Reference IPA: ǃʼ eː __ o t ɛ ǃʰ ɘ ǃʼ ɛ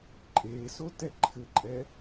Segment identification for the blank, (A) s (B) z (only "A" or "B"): A